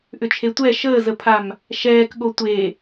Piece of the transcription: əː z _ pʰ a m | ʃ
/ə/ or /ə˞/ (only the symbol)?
ə